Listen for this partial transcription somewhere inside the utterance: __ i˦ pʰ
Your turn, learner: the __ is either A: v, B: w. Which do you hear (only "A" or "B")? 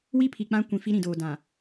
B